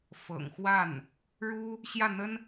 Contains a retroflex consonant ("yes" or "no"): yes